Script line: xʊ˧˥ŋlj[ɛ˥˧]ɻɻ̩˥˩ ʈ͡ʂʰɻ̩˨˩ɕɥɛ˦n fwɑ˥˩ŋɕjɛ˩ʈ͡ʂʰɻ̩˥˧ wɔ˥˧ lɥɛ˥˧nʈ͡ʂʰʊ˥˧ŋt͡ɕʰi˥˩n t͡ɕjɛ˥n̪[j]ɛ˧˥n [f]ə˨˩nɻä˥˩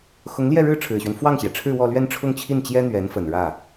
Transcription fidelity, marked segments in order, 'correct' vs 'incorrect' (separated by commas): correct, incorrect, correct